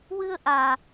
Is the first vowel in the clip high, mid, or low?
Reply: high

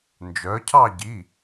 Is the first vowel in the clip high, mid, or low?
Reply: mid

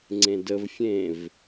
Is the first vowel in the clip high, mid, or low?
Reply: mid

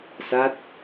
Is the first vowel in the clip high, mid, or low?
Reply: low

